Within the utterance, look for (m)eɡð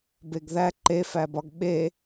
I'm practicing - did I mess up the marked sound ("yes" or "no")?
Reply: yes